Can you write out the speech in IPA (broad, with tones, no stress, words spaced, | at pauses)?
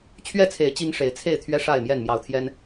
t͡ɕʰɥɛ˥˨t͡sʰe˨˦ɪ̯ t͡ɕi˦ŋʂe˨˦ɪ̯ t͡sʰe˥˨ɪ̯t̪ʰɥɛ˦ ʂa˥˨ɪ̯mjɛ˥˨n mjɑ˨˦ʊ̯t̪ʰjɛ˦n